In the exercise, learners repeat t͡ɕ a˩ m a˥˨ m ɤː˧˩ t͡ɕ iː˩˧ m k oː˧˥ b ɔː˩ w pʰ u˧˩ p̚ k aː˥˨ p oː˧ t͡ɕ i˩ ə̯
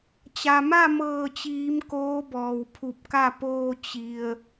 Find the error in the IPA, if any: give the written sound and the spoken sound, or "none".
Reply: aː˥˨ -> a˥˨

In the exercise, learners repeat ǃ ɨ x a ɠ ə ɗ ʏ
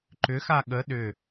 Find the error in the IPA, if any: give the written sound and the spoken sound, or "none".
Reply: ɨ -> ʏ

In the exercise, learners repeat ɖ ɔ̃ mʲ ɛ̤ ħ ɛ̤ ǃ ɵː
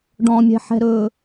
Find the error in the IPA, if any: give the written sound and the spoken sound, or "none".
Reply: ǃ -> ɾ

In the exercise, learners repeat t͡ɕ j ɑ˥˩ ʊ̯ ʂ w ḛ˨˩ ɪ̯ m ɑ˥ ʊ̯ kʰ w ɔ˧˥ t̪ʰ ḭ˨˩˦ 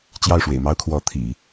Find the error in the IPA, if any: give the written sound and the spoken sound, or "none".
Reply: none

